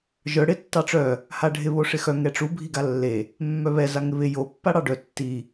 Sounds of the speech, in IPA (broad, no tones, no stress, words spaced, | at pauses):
ʒœ ɽɪ tːɑʈ͡ʂœ | haɖʱɪ βoʂɪxœ ŋɛʈ͡ʂu bʱiɡalːe | mːœβɛ zaŋɪβɪ jo pːaɽɑɖœ tːi